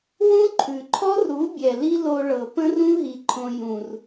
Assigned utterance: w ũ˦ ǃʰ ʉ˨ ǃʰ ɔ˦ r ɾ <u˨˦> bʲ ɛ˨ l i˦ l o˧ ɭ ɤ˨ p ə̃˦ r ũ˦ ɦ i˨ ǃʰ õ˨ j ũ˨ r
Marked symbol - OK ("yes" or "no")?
yes